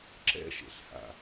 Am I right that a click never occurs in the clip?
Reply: no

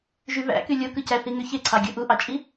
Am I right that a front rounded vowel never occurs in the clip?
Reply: no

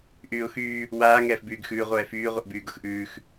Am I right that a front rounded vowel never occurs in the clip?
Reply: no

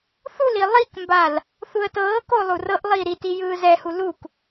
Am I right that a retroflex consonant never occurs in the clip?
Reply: yes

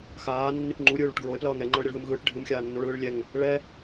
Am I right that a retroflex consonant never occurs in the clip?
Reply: no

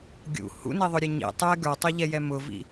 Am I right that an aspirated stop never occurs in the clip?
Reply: yes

